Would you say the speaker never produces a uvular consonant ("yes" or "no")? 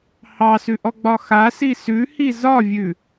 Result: yes